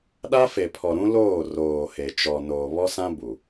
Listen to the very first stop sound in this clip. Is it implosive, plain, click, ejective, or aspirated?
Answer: implosive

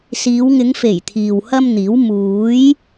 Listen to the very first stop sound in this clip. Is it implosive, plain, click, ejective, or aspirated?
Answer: aspirated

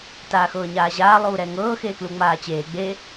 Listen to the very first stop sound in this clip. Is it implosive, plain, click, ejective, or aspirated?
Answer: plain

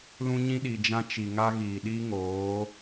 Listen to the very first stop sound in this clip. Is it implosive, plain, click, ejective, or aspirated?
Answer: implosive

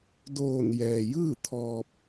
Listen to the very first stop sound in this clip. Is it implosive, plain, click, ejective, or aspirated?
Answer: plain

